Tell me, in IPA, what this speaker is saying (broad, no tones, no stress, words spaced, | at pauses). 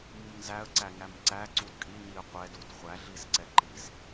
mumnzæə̯ǀæŋæm ǀæ ǀudkʼi ɲiə̯qʷɛdud χʷæɮisǀɛ ǃis